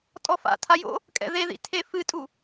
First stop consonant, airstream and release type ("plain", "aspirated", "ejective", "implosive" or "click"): ejective